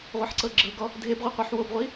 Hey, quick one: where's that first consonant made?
uvula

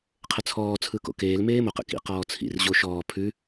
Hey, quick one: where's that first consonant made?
uvula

